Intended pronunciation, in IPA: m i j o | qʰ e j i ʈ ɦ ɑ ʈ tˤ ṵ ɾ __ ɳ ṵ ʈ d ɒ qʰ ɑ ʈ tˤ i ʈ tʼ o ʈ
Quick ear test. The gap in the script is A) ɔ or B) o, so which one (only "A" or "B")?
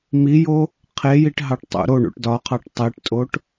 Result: B